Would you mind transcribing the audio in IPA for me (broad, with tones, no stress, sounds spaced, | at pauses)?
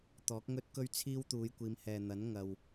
t̪ ɔː˨˥ k̚ ŋ ɵ˥ t̚ k ɵ˥ ɥ t͡sʰ iː˥ w t̪ uː˨˧ j kʷ iː˨˧ m h ɛː˨ n̪ ɐ˨˥ n ŋ ɐ˨ w